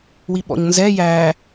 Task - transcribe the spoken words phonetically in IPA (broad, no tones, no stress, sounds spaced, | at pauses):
w i ɓ ɔ̰ ɲ n z ɛ j æ